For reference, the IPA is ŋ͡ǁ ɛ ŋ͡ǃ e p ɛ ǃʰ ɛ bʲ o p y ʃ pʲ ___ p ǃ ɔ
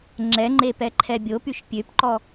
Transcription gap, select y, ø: ø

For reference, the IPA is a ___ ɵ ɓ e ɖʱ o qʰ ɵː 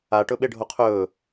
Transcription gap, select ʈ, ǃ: ʈ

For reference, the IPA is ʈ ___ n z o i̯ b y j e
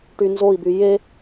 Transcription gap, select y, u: y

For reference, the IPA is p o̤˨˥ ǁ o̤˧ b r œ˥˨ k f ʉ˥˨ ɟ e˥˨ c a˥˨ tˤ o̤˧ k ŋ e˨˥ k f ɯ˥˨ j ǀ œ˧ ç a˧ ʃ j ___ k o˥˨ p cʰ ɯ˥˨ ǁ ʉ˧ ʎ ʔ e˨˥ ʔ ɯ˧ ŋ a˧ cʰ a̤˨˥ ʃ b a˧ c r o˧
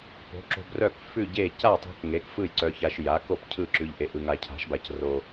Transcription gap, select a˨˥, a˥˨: a˨˥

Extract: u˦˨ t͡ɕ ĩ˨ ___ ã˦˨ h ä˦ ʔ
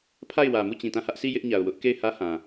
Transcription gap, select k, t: t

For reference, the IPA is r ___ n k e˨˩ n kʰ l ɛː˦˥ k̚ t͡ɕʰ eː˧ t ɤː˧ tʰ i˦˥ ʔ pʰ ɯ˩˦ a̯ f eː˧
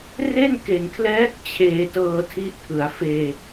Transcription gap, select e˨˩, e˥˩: e˥˩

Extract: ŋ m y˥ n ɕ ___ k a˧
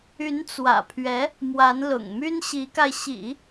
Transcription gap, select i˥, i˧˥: i˧˥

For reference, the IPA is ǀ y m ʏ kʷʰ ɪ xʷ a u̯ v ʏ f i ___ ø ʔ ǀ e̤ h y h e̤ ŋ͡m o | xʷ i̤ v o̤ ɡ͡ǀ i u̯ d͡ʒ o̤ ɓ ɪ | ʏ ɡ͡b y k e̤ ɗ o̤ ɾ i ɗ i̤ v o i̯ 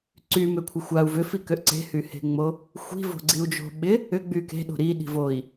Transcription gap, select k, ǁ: k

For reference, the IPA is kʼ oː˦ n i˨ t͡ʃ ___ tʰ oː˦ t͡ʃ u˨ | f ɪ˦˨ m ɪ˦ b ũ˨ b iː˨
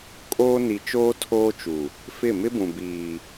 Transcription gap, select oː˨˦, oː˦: oː˦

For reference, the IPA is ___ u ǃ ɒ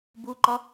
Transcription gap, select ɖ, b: b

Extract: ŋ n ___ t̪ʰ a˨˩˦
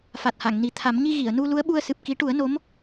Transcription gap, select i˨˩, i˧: i˨˩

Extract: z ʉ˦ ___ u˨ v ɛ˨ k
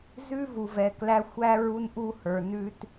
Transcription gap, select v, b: v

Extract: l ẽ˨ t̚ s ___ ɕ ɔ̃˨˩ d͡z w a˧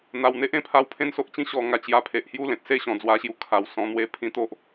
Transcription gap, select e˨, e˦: e˦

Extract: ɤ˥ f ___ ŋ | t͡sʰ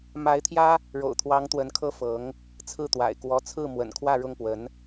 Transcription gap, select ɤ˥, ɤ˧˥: ɤ˧˥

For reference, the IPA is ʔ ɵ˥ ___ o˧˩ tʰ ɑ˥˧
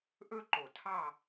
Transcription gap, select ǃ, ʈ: ǃ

